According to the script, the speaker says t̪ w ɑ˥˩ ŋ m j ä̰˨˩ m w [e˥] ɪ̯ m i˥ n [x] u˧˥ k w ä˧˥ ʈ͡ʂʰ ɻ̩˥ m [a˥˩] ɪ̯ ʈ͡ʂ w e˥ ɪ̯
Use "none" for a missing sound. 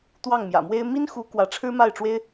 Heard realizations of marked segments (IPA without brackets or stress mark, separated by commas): e˥, x, a˥˩